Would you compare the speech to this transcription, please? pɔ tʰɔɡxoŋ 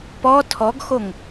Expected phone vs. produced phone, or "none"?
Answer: none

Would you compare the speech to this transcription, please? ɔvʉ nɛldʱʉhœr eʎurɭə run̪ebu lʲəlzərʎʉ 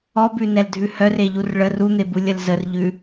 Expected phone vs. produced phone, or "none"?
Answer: v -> b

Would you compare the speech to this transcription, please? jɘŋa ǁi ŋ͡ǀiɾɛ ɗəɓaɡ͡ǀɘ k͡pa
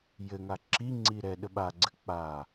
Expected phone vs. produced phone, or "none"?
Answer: none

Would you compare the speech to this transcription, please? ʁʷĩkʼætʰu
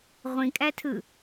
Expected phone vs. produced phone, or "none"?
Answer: u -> ɯ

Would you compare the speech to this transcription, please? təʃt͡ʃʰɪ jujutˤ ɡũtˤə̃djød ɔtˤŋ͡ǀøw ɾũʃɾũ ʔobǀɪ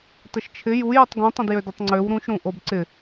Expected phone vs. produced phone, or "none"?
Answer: ɔ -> ə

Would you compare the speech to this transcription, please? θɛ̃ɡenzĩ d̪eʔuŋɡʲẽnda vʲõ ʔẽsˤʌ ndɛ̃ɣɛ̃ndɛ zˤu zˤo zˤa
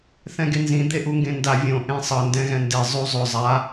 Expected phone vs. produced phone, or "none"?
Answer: ɡʲ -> ɡ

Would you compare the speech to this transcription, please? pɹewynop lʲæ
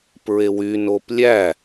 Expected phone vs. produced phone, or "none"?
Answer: none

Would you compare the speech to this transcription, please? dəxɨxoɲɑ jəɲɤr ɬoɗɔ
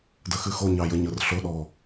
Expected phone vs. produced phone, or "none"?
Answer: none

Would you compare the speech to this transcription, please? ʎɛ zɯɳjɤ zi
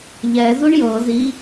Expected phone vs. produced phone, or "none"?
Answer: ɯ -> u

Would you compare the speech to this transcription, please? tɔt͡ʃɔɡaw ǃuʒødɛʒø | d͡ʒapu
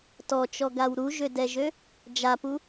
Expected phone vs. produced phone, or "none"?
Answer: ǃ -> ɾ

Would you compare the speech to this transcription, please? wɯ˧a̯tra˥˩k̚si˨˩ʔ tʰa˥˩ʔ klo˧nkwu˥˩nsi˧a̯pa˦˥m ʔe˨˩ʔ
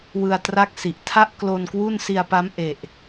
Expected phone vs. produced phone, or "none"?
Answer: none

